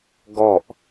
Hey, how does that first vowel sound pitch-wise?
falling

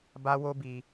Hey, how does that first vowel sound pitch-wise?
high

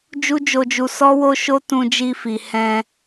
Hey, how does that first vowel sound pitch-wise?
high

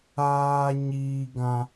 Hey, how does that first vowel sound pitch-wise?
high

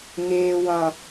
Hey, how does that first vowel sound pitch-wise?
low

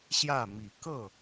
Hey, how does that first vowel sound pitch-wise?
falling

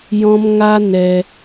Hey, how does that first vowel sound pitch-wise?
high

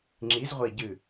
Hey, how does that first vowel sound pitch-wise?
rising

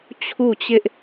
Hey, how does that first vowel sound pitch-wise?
falling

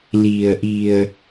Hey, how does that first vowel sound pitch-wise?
low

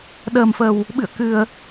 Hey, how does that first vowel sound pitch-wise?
low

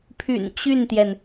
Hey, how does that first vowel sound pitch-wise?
low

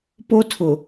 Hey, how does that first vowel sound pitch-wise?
high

